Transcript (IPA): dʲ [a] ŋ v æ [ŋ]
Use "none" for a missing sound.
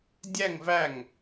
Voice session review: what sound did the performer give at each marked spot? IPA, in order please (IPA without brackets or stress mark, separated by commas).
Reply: æ, ŋ